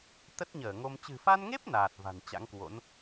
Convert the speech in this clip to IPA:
t̪ə˦˥t̚ɲəː˧˩ŋo˧m t͡ɕɨ̤˨˩fa˧nŋe˦˥p̚ naː˨˩t̚va̤˨˩n t͡ɕa̰˧˥ŋkwo̰˧˥n

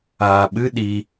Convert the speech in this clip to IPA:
aːɓɨ ɗi

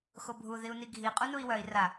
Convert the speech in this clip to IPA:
xobʱu ðiu̯niɡʱi qʼunui̯wœi̯ ra

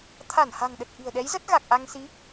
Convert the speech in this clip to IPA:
t̪ʰa˧˩nha̤˨˩ŋɗə˨˩t̚ ʔi̤˨˩ə̯ɗɛ˨˦jzə˦˥t̚ ɣa˨˩k̚ʔa˧ŋsi˨˦

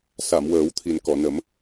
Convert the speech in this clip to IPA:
sa˨˩˨mwəː˨˩˦wt̪ʰi˨˩n kɔ˨˩˨nə˨˩˦m

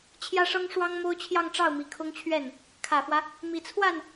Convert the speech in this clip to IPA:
t͡ɕʰjä˥ʂɤ˥ŋ ʂwɑ˥ŋ mo˥ʊ̯t͡ɕʰjɑ˥˧ŋʈ͡ʂɑ˥˩ʊ̯mi˨˩ kʰʊ˥ŋt͡ɕʰɥɛ˥˩n | kʰä˨˩fwä˦ | mi˨˩t͡sʰwa˥˩n

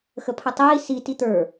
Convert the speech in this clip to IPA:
xəpʰətˤiː si tit̪ə˞

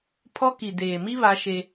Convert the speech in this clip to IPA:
pʰɔ˦ ki˨deː˨mi˦ βa˦ʃe˦

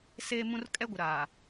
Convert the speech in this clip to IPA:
seː˦mũ˦r kʼɛ˦ɡʷɪ˨ ɾaː˨

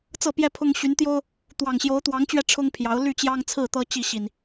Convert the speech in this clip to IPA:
t͡sɤ˥˨pjɛ˦pʰʊ˦ŋ ɕy˨˦nt̪jo˦ʊ̯ | t̪wɑ˨˩ŋɕjo˨˦ʊ̯t̪wɑ˨˦ŋt͡ɕɥɛ˧ ʈ͡ʂʰʊ˦ŋpʰjɑ˨˦ʊ̯ ly˥˨ t͡ɕjɑ˦ŋt͡sʰɹ̩˥˨t̪ɤ˦ t͡ɕi˥˨ɕi˨˩n

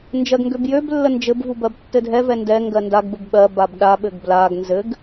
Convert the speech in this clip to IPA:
nd͡ʒɜɡŋɡøbjøblːə nd͡ʒɘbvu bɜbtːɘdʱɛvɛ ndɛ ŋɡɜndaɡbɘb ɓɜ babɗaɓɘɡ blaɡ nzɘɡ

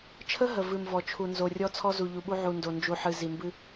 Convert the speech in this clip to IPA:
t͡ʃʰə˦ɦə˨ vɨ˨mvɔ˨ t͡ʃʰu˨nzo˨rʲɔ˦ t͡sʰɔ˦zu˨ʎu˨ɓu˦ ʕu˨ndo˨nd͡ʒu˨ ħɨ˨zi˨mbɨ˦

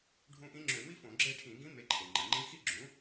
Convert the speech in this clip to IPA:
ɖʱũ˧˥ʔĩ˧˥ ŋ͡ǁø˧˩˧mi˥fõ˧˩˧ ɡ͡ǁe˦˨ʈʰĩ˧˩˧ɡĩ˧˥ me˩˥ǃʰe˩ŋ͡ǃi˩ ŋ͡ǃĩ˧˥xi˥ ɡ͡ǁũ˩˥

